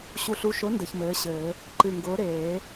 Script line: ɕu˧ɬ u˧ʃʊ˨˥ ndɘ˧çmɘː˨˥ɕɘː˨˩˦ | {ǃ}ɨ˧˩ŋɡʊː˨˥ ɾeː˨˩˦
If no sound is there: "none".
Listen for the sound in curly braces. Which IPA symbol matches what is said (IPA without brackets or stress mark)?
ǃ